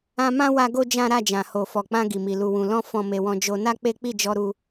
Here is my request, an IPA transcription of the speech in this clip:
ã˧ m ã˦ w a˦ ɡ o˦ d͡ʒ ã˦ ɾ a˦˨ d͡ʒ ã˨ h o˨ f ɔ˨ k͡p ã˧ ɡ i˨ m i˨ l u˨ w ũ˨ l ɔ̃˧ f ɔ̃˨ m e˨ w ɔ̃˨ d͡ʒ o˧ n a˦ k͡p e˦ k͡p i˦˨ d͡ʒ ɔ˧ ɾ u˧

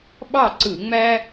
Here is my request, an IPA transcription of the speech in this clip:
ɓ ɑ˥˨ ǀ ɯ˧˩˧ ŋ͡m æ˥

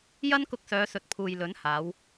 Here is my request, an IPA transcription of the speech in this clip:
j ɐ˥ n k ʊ˧ k̚ s œː˨˧ s ɵ˨ t̚ pʰ uː˨ j l ɵ˨˥ n h aː˨˧ w

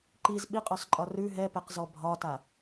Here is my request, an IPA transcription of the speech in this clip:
ǃ i z ɓ i qʼ ɔ s ǃʼ ɒ r ʉ ɦ ɛ p ɛ q z ɔ bʱ ɒ t a

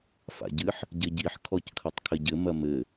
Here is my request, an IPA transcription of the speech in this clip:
f a̰ ɟ ɨ ħ | ɟ ɘ ɟ i ħ kʰ ɔ c kʰ ɐ tˤ kʰ ɘ ɟ ɘ m ɐ m ɘ

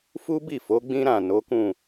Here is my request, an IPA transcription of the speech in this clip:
f u˦ b i˦˨ f o˨˦ ɡ͡b ĩ˦ ɾ ã˦˨ n o˨˦ k ũ˦˨

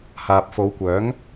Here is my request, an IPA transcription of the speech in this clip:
h aː˨ p̚ f o˨˧ w kʷ œː˨˥ ŋ

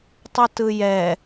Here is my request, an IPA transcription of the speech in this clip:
tˤ o t ɯ j ɛ

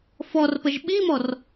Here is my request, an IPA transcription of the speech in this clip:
f ɔ r p ə ʒ ɓ i m ɔ r

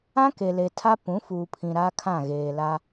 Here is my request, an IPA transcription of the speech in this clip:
ã˦ k e˨ l e˨ tʰ a˦ p ũ˨˦ f uː˨ pʰ ĩ˨ ɾ a˦ kʰ ã˦˨ ɣ eː˨ l a˦

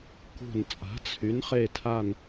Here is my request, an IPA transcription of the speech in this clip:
k ṳ˧˩ n t͡sʼ a̤˨˥ t͡sʰ y˨˥ n χ e˥˧ tʰ a˥˧ n

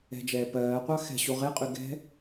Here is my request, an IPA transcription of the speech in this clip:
ɛ̤ d͡ʒ ɛː p ɜː qʷ ɑ x ɛ̤ ɕ u ʁ e qʼ y ɡ ɛ̤

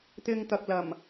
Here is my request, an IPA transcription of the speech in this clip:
t̪ ɪ˧ ŋ t̪ ɐ˨ k̚ l ɐ˨˩ m

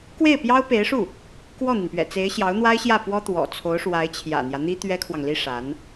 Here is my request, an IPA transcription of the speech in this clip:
k w e˥˩ ɪ̯ p j ɑ˥ ʊ̯ p e˧˥ ɪ̯ ʂ u˥˩ | k w ɔ˥˩ n̪ i˩ n p ɥ ɛ̰˨˩ t͡s e˧˥ ɪ̯ ɕ j ɑ˧˥ ʊ̯ n̪ w a˥ ɪ̯ ɕ j ä˥˩ p w ɔ˥ t̪ w ɔ̰˨˩ t͡sʰ o˧˥ ʊ̯ ʂ w a˧˥ ɪ̯ t͡ɕʰ j ä̰˨˩ n̪ j ä˦ n̪ i˥ t̪ ɥ ɛ˥ kʰ w ɑ˨ ŋ l i˥ ʂ a˧˥ n

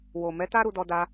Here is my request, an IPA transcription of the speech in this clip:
w o˨ m ɛ˨˦ t a˦ ɾ u˧ d ɔ˧ d a˧

